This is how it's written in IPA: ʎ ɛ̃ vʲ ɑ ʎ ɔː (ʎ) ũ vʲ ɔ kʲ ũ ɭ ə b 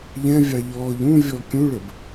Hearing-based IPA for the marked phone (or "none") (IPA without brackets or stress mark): ʎ